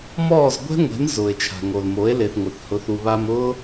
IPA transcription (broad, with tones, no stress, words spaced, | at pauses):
mɔː˦˨zɡʷɛ̤˦ŋʷe̤˨˦n zʊː˨e̯t͡ʃʰa̤˨ŋo˨lmo˨˦e̯ le˨θŋʷɪ˨θhʊ˨˦θ u˨βa˧mʊː˦